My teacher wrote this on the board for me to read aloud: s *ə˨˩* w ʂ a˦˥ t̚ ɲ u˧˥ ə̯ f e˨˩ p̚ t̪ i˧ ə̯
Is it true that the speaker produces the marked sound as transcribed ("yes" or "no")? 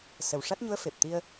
yes